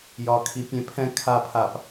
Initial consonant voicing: voiced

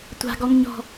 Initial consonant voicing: voiceless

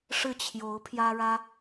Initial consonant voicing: voiceless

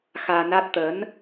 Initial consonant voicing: voiceless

